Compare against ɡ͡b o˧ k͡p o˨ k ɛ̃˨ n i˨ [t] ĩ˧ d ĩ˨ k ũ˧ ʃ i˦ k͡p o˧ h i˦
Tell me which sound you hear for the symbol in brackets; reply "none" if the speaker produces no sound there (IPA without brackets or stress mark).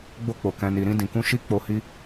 ɾ